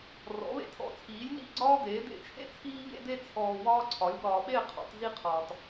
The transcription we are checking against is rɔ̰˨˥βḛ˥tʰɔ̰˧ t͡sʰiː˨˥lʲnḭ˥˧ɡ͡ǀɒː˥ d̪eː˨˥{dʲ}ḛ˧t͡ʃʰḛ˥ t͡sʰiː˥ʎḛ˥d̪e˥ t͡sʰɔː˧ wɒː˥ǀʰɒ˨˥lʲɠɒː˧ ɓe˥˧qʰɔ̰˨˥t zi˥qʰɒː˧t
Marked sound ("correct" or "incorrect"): incorrect